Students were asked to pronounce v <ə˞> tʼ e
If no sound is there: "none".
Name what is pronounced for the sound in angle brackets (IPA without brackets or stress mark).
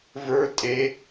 ə˞